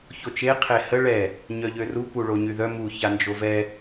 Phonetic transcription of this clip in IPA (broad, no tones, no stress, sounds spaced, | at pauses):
ç o t͡ʃ e qʰ e h ə ɭ ɛ | ɲ œ ʎ ø r u p u ɭ o ɲ y ð œ m u ç a n d͡ʒ o v ɛ